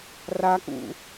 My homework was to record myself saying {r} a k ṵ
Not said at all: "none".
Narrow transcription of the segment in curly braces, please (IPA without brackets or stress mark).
r